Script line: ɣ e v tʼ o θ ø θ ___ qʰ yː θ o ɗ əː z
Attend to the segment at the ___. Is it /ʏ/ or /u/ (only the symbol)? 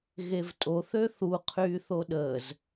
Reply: u